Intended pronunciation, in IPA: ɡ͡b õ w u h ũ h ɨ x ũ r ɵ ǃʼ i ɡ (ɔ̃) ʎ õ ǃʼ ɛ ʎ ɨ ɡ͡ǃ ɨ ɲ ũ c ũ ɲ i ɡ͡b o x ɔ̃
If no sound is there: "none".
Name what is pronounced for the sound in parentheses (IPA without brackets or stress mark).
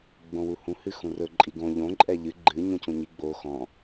õ